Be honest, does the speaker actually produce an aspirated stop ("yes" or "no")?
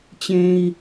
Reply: no